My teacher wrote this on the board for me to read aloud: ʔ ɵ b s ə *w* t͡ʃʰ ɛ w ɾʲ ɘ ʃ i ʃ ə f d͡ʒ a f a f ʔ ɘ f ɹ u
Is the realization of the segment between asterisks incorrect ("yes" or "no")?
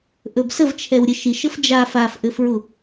yes